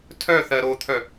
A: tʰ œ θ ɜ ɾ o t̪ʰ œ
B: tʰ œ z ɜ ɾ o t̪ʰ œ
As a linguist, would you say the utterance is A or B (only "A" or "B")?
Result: A